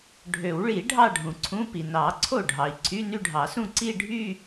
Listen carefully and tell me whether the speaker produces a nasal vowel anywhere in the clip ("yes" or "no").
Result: yes